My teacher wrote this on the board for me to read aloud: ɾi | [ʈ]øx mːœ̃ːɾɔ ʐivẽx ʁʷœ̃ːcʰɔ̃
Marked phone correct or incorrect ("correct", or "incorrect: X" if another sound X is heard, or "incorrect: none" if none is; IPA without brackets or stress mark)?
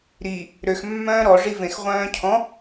incorrect: ɾ